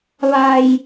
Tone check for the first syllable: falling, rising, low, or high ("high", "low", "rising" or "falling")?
low